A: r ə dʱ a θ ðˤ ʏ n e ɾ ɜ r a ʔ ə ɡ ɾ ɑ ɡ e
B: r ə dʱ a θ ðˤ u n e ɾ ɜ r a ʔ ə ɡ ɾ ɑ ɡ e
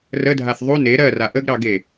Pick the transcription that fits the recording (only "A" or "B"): B